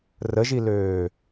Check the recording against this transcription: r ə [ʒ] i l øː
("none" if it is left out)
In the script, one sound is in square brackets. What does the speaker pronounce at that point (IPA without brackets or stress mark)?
ʒ